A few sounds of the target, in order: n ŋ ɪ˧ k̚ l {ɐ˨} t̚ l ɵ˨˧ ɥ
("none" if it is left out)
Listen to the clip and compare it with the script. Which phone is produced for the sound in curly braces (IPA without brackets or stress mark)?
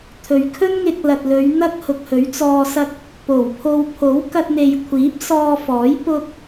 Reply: ɐ˨